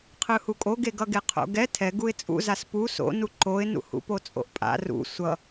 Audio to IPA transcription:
qʰ ɯ h u kʼ o ɡ e ɡ ʌ ɡ e qʰ o̰ ɡ ɛ tʰ ɛ ɡ u ɪ̯ t͡sʼ ṵ z a s p u s o̰ n u ǃ o ɪ̯ n ṵ h ṵ p o t͡sʼ o̰ ʔ pʼ a̰ r ṵ sʷ ʌ

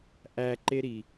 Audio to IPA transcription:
ʔ æ ǃ e ɾ i

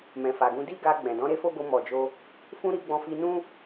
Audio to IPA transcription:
m ɛ̃˨ f a˨ ɡ ũ˧ d i˦ ɡ a˧ ɡ͡b ɛ̃˨ d ɔ̃˨˦ ɾ e˦ f o˦ ɡ o˧ m ɔ˨ d͡ʒ o˧ | f ũ˧ ɾ i˧ ɡ͡b ɔ̃˧ f i˧ n ũ˦

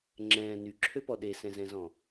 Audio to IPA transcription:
ŋ͡ǁ ɛ̃ː n y ǁʰ ø p ɔ ɗ e s ɛ̃ z ɛ̃ z ɔ̃

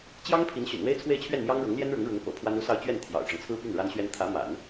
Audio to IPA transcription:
t͡ɕ j ɑ˥ ŋ pʰ i˧˥ n ɕ y̰˨˩ n w e˥ ɪ̯ t͡sʰ w e˥˧ ɪ̯ t͡ɕʰ ɥ ɛ˥˩ n m j ɑ˥ ŋ ɻ ɤ˧˥ ŋ l j ɛ˥ n ɻ ʊ˧˥ ŋ ɻ ʊ˧˥ ŋ p ɤ̰˨˩ pʰ w a˥ n u˥˧ s ɑ˥˧ ʊ̯ t͡ɕ ɥ ɛ˥˩ n t̪ʰ j ɑ̰˨˩ ʊ̯ ʈ͡ʂ ɤ˦ ŋ t͡sʰ ɹ̩˥ p y˥˩ n ɻ a˥ n ɕ ɥ ɛ˥ n t̪ʰ ä˧˥ m a̰˨˩˦ n

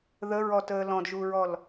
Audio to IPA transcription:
ð ə ɹ ɔ t əː l ɔ̃ d ʒ u ɹ ɔ l

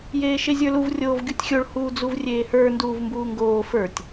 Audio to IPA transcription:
j eː ʃ e zʲ ə˞ l u v rʲ oː v ɡʲ u tʲ xʲ o ɭ h uː d͡z u v rʲ eː h ə˞ n d uː v m b uː ŋ ɡ oː f ə˞ tʲ

